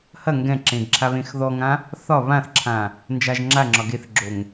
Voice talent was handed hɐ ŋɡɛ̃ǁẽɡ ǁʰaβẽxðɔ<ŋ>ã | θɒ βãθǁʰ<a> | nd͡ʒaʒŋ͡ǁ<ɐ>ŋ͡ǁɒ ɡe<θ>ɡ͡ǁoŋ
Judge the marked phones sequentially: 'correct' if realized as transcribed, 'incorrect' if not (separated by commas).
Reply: correct, incorrect, incorrect, correct